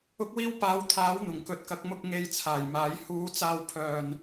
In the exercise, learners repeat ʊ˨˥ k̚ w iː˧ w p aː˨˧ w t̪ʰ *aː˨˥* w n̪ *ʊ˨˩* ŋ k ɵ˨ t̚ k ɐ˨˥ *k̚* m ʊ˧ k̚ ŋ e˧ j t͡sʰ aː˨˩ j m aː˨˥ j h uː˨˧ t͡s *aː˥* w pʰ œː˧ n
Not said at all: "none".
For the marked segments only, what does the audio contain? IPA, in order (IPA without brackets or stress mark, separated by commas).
aː˨˥, ʊ˨˩, k̚, aː˧